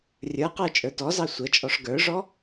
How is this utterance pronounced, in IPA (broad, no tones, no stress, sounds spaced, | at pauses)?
rʲ ə˞ q ə˞ t͡ʃʼ ə˞ t ɔ z ɑ sʷ ə t͡ʃʼ ɔ ʂ ɡ ə˞ ʐ ɔ